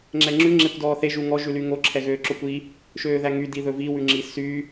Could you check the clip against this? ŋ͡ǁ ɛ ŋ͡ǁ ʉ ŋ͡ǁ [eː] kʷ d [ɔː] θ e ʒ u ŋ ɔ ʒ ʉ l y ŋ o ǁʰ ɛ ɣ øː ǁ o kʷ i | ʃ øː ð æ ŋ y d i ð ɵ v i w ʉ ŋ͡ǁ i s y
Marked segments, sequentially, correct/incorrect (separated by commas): incorrect, correct